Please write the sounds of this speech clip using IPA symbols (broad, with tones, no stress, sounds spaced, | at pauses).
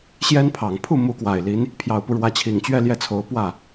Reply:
ɕ j ɛ˥ n pʰ ɑ˨˩ ŋ pʰ u˥˩ m u˧˥ k w a˨˩ ɪ̯ l i˧˥ n | pʰ j ɑ˨˩ ʊ̯ p u˦ ɻ w ä˧˥ t͡ɕʰ i˨˩ ŋ t͡ɕ ɥ ɛ˥˧ l j ɛ˥˩ t͡sʰ o˧˥ ʊ̯ p w ä˥˩